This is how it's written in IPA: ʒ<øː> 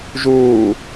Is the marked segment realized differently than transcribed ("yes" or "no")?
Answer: yes